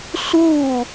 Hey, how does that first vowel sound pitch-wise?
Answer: falling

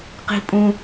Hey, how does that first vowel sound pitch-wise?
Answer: high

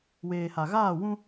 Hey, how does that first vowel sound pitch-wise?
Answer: low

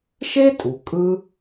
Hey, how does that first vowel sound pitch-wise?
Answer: high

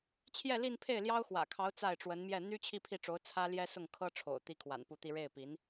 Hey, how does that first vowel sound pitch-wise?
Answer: falling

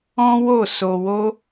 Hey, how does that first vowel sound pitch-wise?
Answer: high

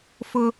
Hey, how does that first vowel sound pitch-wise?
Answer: high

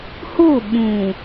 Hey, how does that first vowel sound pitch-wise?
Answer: falling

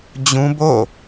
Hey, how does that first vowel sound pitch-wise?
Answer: high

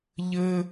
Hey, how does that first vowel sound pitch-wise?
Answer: high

